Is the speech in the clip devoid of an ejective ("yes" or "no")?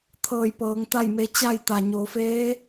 yes